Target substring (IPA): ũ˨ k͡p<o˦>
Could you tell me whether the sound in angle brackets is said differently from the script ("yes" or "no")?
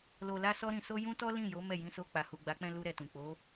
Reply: yes